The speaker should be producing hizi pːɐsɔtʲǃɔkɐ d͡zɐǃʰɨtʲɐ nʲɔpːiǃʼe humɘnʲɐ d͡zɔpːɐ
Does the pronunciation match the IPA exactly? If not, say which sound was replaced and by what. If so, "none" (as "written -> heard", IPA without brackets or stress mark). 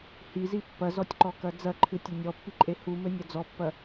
s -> z